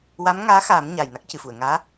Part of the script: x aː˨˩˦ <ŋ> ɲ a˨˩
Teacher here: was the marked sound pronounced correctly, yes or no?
no